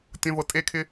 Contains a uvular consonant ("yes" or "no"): no